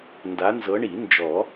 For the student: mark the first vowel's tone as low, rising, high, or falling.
rising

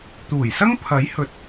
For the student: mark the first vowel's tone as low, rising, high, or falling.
low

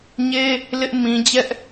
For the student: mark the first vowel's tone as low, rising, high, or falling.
high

